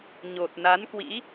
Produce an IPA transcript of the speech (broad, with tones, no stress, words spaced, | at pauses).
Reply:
ɲo˨˩t̚ na˨˦nkwḭ˧˥